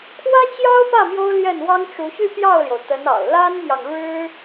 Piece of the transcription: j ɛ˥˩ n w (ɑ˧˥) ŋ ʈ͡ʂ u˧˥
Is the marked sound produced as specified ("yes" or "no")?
no